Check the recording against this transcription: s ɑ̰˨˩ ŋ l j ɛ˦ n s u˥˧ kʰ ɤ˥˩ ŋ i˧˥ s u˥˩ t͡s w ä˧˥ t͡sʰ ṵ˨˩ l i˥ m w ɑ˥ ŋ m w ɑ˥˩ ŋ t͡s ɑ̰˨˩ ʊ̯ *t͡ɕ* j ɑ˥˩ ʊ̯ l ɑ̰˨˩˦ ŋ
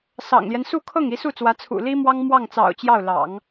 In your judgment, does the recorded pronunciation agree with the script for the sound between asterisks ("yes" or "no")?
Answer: yes